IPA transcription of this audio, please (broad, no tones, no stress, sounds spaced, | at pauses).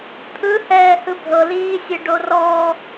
t̪ʰ ɯ h ɛː h ɯ bʱ ɤ l iː sʲ e ɖ o r ɔ